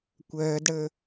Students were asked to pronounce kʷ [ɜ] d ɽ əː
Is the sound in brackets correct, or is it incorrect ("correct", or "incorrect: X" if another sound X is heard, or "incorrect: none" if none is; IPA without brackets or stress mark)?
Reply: incorrect: ɜː